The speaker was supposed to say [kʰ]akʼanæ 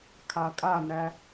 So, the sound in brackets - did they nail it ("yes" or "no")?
yes